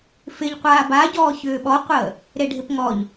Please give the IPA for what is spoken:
f ɪ ʎ qʷ aː b a ɟ ɔː ç ʏː ɓ ɔ qʷ əː | ɾ e ɖʱ ɪ p ŋ ɔ ʎ

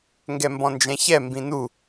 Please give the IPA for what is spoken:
ŋ ɡ ɛ m b ɔ̃ n d͡ʒ ɛ̃ ç ɛ m b ĩ n u

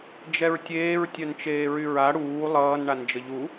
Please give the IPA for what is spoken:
d͡ʒ ɛ ɹ tʲ eː ɹ tʲ œ n t͡ʃ eː ɹ y ɹ a ɽ uː lˠ ʌː n ɳ a n d͡ʒ ə ʎ u

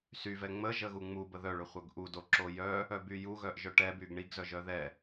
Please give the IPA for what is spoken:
s y v ɛ ŋ͡m ə ʒ ə ɣ u ŋ͡m u b ə ð œ ɭ ø χʷ œ ɡ ʔ u d o ǁ o j œ | œ b y j u ɣ œ ʔ ʒ œ ʈ ɛ b y ɡ ɳ i ɡ z œ ʒ œ ð ɛ

